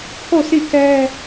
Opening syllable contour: falling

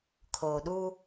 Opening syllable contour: low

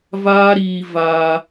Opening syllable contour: high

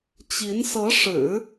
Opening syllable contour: rising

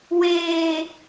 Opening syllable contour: high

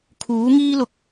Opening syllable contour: rising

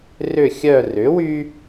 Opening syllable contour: falling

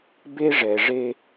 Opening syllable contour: high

